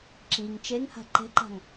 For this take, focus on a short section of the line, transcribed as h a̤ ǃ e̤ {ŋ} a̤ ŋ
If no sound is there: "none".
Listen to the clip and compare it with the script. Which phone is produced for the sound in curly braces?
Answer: ǃ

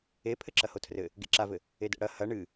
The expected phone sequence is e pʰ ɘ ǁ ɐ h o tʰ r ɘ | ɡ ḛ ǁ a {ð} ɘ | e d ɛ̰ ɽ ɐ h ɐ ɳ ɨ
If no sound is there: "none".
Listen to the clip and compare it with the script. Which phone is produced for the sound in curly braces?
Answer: v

